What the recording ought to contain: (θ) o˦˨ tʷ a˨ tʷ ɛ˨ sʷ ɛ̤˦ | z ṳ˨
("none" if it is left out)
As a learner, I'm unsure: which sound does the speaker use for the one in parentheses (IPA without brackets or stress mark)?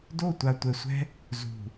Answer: d